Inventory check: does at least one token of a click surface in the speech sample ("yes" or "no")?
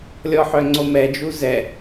yes